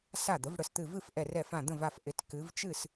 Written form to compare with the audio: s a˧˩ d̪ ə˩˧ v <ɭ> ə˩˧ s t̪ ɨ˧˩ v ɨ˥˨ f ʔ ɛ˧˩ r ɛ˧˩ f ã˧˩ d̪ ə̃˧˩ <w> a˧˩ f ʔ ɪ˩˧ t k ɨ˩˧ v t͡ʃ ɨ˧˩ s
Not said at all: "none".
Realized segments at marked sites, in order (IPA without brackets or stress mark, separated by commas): ɽ, v